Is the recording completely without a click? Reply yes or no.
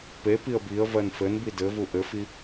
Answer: yes